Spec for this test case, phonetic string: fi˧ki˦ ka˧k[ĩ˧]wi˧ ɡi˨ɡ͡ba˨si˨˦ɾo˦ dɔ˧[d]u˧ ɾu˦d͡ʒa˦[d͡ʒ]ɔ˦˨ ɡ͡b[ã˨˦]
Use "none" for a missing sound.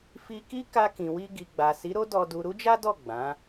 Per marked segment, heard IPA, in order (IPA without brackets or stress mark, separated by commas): ĩ˨, d, d, ã˨˦